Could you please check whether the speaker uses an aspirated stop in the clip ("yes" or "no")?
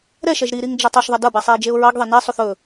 no